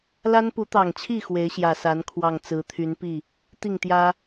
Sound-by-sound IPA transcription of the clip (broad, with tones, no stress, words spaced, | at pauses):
la˦n pu˨˦t̪ɑ˨˩ŋt͡ɕʰi˥˨ xwe˨˦ɪ̯ɕjä˨˩sa˨˦n kʰwɑ˨˩ŋ t͡sɹ̩˨˦t̪ʰy˨˦npi˥˨ | t̪i˥˨ŋt̪jä˦